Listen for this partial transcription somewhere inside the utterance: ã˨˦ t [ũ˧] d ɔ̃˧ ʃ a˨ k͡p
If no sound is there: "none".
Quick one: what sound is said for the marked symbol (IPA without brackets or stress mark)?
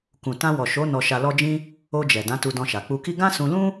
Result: u˧